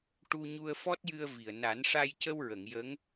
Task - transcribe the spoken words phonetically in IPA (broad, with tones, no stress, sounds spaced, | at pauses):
ʈ u˧ ɲ u˧ ə̯ f ɔ˦˥ t̚ j ɨ˧ ə̯ v i˨˩ ə̯ n a˨˩˦ n ʂ a˧ j c ə˧ w ɹ ə˨˩˨ ŋ j ə˧˥ ŋ